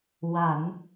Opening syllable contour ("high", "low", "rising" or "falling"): low